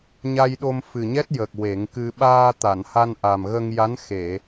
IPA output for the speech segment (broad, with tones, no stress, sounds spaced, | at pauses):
ɲ a˧ j ɗ o˧ m f ɨ˨˩ ɲ ɛ˦˥ t̚ j ə˨˩ k̚ w e˨˩˦ ŋ k ɨ˧ ɓ aː˧ t̪ a˨˩˨ n h a˧ n ʔ a˨˩ m ɣ ə˧ ŋ j a˧˥ n x e˨˩˨